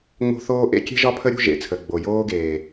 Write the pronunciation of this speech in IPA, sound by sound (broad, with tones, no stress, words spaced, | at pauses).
ŋ͡mo̤˦θoː˦ ʔḛ˦kʲe̤˦ʒɒ˦pʰə˦ ɾʲṳ˦ʒḛ˨t͡sʰə˨ ɡ͡bo˨joː˦ɡeː˨